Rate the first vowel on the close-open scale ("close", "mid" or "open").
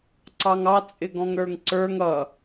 open